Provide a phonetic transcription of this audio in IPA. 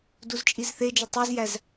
d u z t͡ʃʼ i z θ e d͡ʒ o tˤ æ z j æ z

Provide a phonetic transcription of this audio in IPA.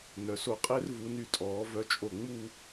n œ˩˧ s o˧˩ qʼ e˥ r v u˩˧ n y˧˩ tʼ ɔː˩˧ v œ˧ t͡ʃʼ o˧˩ ŋ͡m u˥˧

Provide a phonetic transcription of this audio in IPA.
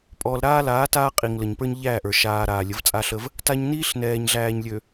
pʼ ɔː˨ l ɾ aː˦ l aː˨˦ t aː˦ qʼ i˨ ŋ l ə˨ ɲ p ə˞˦ ɲ ʎ æː˦˨ ʔ ə˞˨ ʃ aː˨ ɾ aː˨ lʲ ə˨˦ v t͡sʼ a˦ ɬ ə˦ v | t a˦ ɲ n iː˦ ɬ n ɛː˨ ɲ ɮ æː˨ ɲ lʲ ø˨

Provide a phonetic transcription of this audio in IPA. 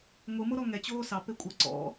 ŋʷ ɨ m o ɾ ɔ ŋ ɛ t͡ɕ oː s ɑ p e kʷʼ ɐ ǀ ɔ̰

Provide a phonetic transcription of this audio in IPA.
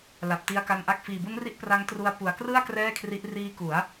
l a˨˩ p̚ t i˧ a̯ k a˧ n ʔ a˦˥ k̚ f iː˨˩ b u˦˥ n r i˦˥ ʔ p r a˦˥ ŋ t r u˧ a̯ p u˨˩ a̯ k r ɯ˥˩ a̯ k r ɛː˥˩ kʰ r i˦˥ ʔ r iː˦˥ k u˩˦ a̯

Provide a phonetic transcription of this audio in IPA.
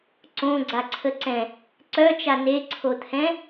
ǀ õ ɡ͡ǀ a ǀʰ ə ǀ ɛ̃ | ǀ œ t͡ʃ a n e ǀʰ o t̪ʰ ɛ̃

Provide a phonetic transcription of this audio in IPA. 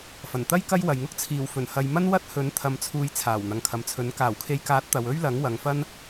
f ɐ˨˩ n t̪ ɐ˥ j k ɐ˥ j w ɐ˨ j ŋ ʊ˥ k̚ t͡sʰ iː˨˩ w f ɵ˨˩ n h ɐ˨ j m ɐ˥ n w ɐ˥ t̚ h ɵ˨˥ n t̪ʰ ɐ˧ m t͡sʰ uː˧ j t͡sʰ aː˨˩ w n̪ ɐ˨ ŋ kʰ ɐ˨ m t͡sʰ ɵ˨˥ n k aː˨˩ w kʰ e˨˧ j k aː˨˥ t̚ t̪ ɐ˨ w ɵ˥ ɥ l ɐ˨˥ ŋ w ɐ˨ ŋ f ɐ˥ n

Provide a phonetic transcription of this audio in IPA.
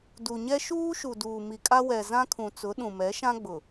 d u˨ ɲ ɛ˦ ʃ uː˦ ʃ u˨ d uː˨ m i˨ kʼ a˦ w ɛ˨ z ã˦ kʰ ũ˨ t͡s ʊ˨˦ ɗ ũ˨ m ɛ˨˦ ʃ ã˦ ɡ͡b ʊ˨

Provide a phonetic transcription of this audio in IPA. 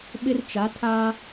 ɓ ɪ˦ r t͡ʃ a˨˦ tʰ a˦

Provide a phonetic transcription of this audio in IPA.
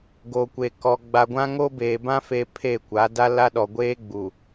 ɡ o˨ kʷ eː˨ k ɔ˨ ɡ͡b a˨ ɡʷ ã˦ ŋ o˦ b eː˨ b ã˦ f e˦ pʰ e˦˨ kʷ a˨˦ d a˦ l a˦ ɗ ɔ˨ ɡʷ eː˦ ɡ͡b u˨

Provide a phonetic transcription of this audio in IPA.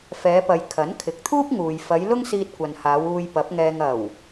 f ɛː˨˧ p ɐ˨ j kʰ ɐ˨˥ n kʰ ɪ˨˥ k̚ t̪ʰ uː˥ p̚ ŋ uː˨ j f ɐ˨˧ j l ʊ˥ ŋ s iː˧ t̚ kʷ ɐ˨ n h aː˨˧ w uː˧ j p ɐ˨˥ p̚ ŋ ɛː˧ ŋ ɐ˨˩ w

